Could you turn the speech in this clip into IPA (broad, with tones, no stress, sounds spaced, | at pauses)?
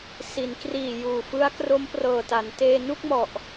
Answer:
s i˩˦ n k r iː˨˩ j uː˨˩ f ɯ˦˥ a̯ k r o˦˥ m p r ɤː˨˩ t a˩˦ n t eː˧ n u˥˩ k̚ m ɔ˨˩ ʔ